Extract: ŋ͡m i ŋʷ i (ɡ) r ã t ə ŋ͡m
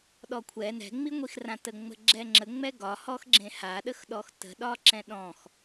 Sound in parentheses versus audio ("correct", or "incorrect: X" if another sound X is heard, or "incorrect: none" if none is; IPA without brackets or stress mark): incorrect: x